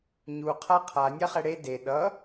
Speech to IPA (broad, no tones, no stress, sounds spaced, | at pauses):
ɲ u qʰ a qʰ a nʲ a χ ɛ ɽ e d e ɗ ʌ